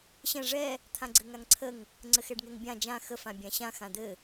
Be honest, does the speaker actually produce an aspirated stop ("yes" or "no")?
yes